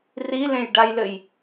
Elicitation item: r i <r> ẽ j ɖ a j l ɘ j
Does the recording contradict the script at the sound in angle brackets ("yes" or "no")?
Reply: yes